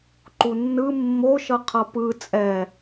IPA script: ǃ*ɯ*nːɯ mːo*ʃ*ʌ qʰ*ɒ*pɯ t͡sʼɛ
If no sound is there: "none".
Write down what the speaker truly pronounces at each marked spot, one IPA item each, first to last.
u, ʃ, ʌ

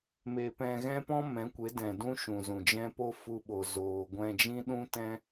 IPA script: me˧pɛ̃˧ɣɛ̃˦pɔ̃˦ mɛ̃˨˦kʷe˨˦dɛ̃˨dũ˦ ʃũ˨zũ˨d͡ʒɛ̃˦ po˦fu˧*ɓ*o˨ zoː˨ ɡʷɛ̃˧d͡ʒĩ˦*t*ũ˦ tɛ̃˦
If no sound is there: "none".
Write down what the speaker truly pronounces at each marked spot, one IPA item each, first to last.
ɓ, ɗ

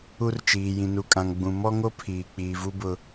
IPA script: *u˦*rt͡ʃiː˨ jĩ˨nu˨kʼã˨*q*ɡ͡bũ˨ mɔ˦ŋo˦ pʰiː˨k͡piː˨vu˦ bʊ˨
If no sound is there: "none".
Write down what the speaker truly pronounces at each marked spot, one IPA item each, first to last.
u˦, ŋ

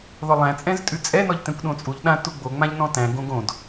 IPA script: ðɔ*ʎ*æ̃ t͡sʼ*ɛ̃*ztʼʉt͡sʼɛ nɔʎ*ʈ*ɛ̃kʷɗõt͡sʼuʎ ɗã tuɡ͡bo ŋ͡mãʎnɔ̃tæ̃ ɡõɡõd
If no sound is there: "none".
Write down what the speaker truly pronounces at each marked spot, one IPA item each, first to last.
lˠ, ɛ̃, t

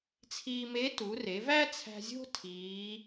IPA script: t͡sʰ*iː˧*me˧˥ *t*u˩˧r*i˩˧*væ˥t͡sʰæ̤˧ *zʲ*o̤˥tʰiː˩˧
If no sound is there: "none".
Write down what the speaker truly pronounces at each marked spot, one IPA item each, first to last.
iː˧, t, e˩˧, zʲ

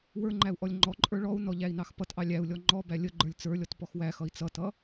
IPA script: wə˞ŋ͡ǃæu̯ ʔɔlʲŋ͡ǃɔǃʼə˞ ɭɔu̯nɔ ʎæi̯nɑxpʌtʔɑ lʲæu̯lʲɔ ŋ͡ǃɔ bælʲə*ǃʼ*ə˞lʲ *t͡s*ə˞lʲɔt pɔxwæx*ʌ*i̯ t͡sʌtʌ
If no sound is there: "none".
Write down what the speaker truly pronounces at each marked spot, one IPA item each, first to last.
ɡ͡ǃ, t͡s, ʌ

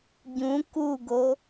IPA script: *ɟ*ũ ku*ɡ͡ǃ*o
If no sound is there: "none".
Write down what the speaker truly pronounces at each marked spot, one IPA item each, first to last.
ɟ, ɡ

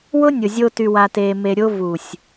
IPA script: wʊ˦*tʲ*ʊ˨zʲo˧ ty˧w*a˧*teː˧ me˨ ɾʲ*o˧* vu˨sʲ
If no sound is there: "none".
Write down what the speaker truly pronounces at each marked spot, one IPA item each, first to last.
nʲ, a˧, o˧

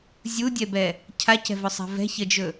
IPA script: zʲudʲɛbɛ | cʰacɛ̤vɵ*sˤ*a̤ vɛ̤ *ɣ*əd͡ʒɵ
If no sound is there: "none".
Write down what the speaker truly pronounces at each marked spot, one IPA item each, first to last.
sˤ, ç

